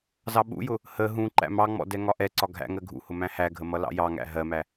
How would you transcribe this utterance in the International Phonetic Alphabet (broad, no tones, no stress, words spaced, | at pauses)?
zɑɓṵjʊ | hə ɦũ ǃæ̰mɑŋ͡mɔ̰ dɛŋɒʔɛǀɒ ɡʱæ̰ŋɜ ɡʱṵhʊ mæ̃hæɡʱə mʌlɑ̰jɑŋæ̰ ɦɜmæ